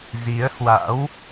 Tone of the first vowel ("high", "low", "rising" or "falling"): rising